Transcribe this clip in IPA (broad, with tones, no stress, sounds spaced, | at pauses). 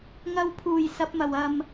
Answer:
ŋ ɐ˧ w pʰ uː˨˩ j s ɐ˨˥ p̚ m ɐ˨˩ w ɐ˧ m